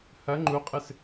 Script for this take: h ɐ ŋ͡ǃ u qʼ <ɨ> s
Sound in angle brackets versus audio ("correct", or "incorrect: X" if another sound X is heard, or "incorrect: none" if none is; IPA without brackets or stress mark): correct